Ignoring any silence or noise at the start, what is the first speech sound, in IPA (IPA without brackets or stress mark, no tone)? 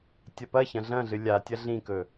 tʲ